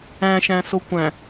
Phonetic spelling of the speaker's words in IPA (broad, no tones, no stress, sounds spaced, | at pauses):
æ̃ ʃ æ̃ s o kʷ æ̃